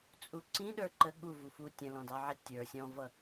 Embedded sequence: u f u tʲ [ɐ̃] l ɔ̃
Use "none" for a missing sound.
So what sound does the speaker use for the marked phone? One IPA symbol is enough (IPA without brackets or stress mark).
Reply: ə̃